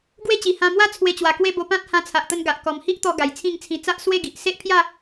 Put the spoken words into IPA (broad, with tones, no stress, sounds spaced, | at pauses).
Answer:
ɡ w e˦ t͡ɕ i˨˩ h ã˧ m w a˥˧ t͡sʰ w e˧ t͡ɕ w a˨˩ k w e˦ b o˧ p ã˦ t̚ h ã˧ t͡sʰ a˨ ʔ t̪ ə˧ n ɡ a˨ ʔ k ɔ˨˩ m h i˦ ʔ t̪ ɔ˧ ɡ a˨˩ j t͡sʰ ĩ˥˧ ŋ t͡sʰ ĩ˧ t͡s a˦ ʔ s w e˥˧ ɡ i˨ ʔ s e˦ ʔ pʰ j a˥˧